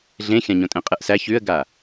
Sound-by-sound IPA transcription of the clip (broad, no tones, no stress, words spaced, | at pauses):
ɮẽxʲãɲõ tʼẽqʼɨʔsæç ʉə̯ɡa